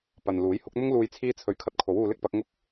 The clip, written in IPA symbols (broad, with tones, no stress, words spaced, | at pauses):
pɐ˨nluː˨˥j hʊ˨˥k̚n̪ʊ˥ŋluː˧j t͡sʰiː˥t͡sʰɵ˧ɥ kʰɐ˧t̚kʰo˨˥wuː˧lɪ˥k̚ pɐ˨˥k̚ŋʊ˥k̚